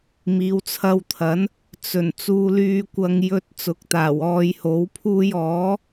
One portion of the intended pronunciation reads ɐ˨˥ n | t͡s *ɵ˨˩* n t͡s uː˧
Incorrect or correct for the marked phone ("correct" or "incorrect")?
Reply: correct